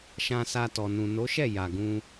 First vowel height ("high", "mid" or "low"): low